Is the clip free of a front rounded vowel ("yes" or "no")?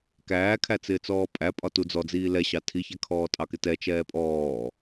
yes